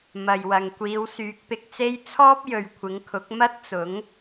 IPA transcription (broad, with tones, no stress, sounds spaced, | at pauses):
m ɐ˨ j w ɐ˨ ŋ kʷ iː˨˧ w s yː˨˥ k̚ p ɪ˨ k̚ t͡s e˥ j t͡sʰ ɔː˥ p̚ j ɵ˨ ɥ kʷʰ ɪ˨˧ ŋ kʰ ʊ˨˥ k̚ m ɐ˥ t̚ t͡s ʊ˨˥ ŋ